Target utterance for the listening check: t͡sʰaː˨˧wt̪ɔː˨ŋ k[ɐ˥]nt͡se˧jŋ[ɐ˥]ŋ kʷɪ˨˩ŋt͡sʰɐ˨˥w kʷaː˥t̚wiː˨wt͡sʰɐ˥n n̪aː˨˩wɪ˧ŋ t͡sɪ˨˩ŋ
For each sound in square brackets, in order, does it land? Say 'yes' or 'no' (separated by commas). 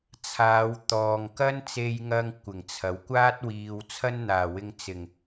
yes, no